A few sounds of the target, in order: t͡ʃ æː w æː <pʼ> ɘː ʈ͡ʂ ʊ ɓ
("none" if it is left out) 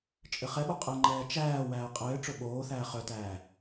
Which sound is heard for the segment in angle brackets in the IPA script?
qʼ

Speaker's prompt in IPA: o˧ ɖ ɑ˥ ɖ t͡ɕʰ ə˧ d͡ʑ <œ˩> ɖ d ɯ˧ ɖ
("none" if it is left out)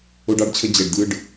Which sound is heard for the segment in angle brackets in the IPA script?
ɛ˩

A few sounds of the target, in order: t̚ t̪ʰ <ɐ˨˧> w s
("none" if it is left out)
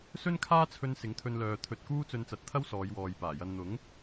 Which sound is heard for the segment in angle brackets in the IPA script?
ɐ˥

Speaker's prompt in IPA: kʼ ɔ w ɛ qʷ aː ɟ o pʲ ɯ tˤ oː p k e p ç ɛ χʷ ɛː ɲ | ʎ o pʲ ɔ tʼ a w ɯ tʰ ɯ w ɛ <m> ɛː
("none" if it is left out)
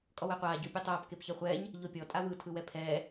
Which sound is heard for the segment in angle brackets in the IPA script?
pʰ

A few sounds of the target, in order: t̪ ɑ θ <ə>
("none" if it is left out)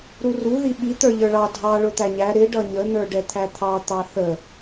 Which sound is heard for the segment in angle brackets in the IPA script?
ə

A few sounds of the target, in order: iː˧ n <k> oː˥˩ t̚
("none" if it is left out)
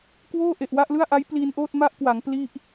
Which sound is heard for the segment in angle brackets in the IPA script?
ʔ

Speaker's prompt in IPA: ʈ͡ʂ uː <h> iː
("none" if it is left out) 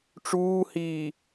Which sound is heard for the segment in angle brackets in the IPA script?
h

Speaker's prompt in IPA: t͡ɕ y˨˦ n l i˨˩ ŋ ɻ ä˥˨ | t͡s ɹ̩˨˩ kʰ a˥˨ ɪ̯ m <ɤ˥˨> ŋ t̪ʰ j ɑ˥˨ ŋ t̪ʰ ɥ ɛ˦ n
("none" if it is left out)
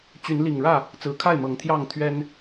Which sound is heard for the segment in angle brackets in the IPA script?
ɤ˨˦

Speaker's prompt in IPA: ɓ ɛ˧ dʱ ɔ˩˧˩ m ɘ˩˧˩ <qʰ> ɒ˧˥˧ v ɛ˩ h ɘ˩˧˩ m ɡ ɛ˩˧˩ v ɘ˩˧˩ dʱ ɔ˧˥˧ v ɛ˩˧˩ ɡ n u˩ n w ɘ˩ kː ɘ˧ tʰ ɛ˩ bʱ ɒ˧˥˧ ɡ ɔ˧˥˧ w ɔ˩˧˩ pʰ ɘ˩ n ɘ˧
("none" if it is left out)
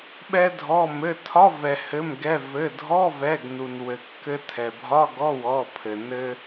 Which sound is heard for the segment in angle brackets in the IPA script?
tʰ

